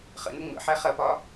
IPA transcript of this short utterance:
χ ə̰ n ə ŋ͡m ə̰ ħ æ χ ɐ p ɒ

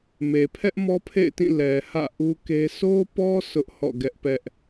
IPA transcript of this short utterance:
m e˨ pʰ ɛ˦ ʔ m ɔ˦ pʰ ḛ˦˨ ɪ̯ t ĩ˦˨ l ɛ˨ h ä̰˦˨ ʔ u˦ k e˦ sʰ o˦ p ɔ˦ sʰ ʊ˦ ʔ h ɔ̰˦˨ ɡ ɛ˦ ʔ p ɛ˦ ʔ

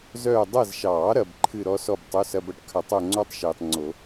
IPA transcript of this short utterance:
z œː˦˨ dˤ ɐ˦˨ z ʃ ɑː˨˩˦ ɾ ɐ˨ b ǃʰ ɨ˦˨ ɾ ɔ˦˥ s ɔ˦˨ b tˤ o˧˥˧ s ɐ˧˥˧ b ɐ˦˥ ʈ kʰ ɐ˨˩˦ tˤ o˦˨ ŋ͡ǀ ɔ˦˥ tˤ ʃ eː˨ tˤ ŋ͡ǀ o˨˩˦

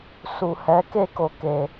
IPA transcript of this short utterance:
s u˨ h ɛ˨˦ k e˦˨ k o˨ k e˨

